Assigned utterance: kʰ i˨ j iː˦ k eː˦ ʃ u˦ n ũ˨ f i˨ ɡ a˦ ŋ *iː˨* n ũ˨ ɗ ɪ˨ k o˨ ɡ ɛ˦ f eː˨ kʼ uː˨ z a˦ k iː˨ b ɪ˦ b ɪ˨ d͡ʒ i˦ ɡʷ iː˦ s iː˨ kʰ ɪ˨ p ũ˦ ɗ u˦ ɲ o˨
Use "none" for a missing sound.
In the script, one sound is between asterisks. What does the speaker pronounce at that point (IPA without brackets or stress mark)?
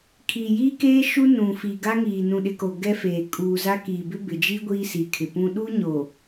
iː˨